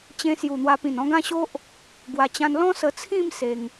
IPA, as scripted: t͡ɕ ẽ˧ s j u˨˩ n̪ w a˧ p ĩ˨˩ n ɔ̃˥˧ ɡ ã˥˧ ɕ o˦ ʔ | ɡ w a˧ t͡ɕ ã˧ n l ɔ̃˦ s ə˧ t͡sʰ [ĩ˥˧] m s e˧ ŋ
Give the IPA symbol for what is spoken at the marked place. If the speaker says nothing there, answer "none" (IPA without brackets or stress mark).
ĩ˥˧